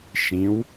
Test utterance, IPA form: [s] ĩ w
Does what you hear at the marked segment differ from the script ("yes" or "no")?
yes